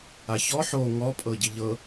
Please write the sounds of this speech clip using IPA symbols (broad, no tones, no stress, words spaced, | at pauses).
açɔ ħo ŋɔ pʼɤɟiʎɤ